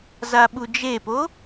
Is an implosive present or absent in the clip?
present